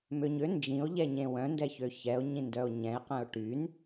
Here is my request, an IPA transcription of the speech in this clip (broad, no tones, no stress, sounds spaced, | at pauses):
m ø ɲ ø n d͡ʒ ĩ o̯ ʎ ɛ ɲ ẽ w œ̃ n d ɛ ç ø ç ɛ o̯ ɲ ĩ n d œ o̯ ɲ ɛ̃ e̯ q ɛ̃ o̯ ʈ y n